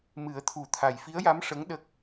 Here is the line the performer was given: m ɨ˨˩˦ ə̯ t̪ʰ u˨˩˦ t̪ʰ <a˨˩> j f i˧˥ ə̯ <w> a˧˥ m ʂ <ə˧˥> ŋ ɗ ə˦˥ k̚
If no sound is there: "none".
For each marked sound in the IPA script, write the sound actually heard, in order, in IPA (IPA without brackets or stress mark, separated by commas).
a˨˩, j, ə˧˥